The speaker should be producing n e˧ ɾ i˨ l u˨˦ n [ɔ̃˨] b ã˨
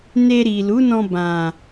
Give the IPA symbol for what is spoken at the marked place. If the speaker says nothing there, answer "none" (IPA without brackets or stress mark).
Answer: ɔ̃˧